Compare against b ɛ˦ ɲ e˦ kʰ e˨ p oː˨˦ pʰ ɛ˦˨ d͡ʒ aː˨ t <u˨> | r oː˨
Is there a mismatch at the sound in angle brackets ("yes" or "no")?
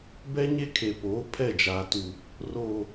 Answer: no